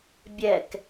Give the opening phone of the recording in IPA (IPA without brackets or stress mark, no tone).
bʲ